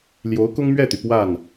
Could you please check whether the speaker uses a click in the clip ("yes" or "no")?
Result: no